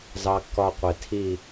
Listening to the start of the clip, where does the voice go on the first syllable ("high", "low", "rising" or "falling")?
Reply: high